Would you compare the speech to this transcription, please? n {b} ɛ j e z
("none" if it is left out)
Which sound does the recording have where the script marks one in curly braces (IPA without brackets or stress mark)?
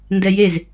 d